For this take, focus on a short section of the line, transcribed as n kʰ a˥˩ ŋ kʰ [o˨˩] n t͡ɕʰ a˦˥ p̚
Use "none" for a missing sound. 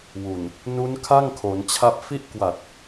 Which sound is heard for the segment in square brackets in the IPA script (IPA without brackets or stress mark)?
o˩˦